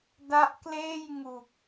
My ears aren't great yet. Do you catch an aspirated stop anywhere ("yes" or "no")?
no